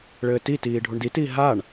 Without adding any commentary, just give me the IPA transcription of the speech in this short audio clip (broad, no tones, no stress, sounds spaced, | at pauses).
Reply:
ɭ ɘː t i t iː ɖʱ u ɳ d i t iː ɦ a ɳ